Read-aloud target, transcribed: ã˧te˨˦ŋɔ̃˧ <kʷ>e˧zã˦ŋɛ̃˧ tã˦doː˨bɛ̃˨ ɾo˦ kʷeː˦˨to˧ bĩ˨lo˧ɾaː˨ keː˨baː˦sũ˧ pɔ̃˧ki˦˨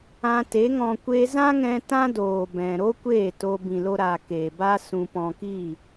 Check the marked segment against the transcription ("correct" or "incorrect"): correct